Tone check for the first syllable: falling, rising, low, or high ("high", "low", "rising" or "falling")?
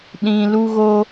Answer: low